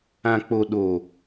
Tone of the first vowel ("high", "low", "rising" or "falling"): low